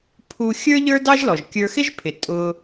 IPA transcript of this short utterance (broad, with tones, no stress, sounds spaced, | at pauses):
pʰ u˧ xʲ ə˞˥ ʎ ə˞˥ d ɑ˥ ʒ l ɔ˩ ʒ kʲ ə˞˧ x ɪ˥ ʒ pʰ ɪ˩ tʼ ʊ˧